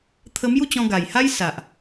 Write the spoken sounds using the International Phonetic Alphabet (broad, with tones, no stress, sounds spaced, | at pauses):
t̪ʰ ə˧ m j u˥˧ t͡ɕ ɔ̃˧ ɡ a˨˩ j h a˦ j s a˨ ʔ